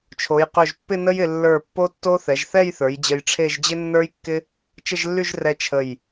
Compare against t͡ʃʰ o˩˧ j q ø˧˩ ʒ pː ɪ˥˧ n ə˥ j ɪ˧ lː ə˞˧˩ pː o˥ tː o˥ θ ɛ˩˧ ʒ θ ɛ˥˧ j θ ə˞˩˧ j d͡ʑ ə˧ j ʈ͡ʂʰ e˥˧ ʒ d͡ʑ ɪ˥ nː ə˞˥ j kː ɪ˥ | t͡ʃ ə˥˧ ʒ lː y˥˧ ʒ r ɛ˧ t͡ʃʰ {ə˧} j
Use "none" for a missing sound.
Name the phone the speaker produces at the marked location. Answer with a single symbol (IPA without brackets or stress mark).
ə˧˩